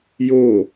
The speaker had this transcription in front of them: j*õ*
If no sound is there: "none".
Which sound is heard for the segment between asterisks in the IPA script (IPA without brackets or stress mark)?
o